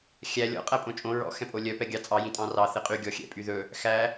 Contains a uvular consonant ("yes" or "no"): yes